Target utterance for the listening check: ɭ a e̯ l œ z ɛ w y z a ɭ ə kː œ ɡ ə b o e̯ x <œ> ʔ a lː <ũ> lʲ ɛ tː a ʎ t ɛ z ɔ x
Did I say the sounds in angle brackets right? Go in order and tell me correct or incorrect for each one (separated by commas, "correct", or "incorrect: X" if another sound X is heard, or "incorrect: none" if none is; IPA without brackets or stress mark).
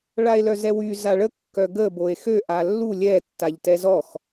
incorrect: ø, incorrect: u